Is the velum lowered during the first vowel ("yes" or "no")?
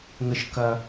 no